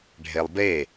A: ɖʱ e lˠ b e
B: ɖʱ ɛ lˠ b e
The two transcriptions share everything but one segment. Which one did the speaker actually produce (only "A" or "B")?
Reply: A